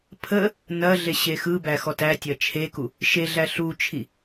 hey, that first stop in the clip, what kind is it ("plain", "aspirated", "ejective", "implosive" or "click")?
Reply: aspirated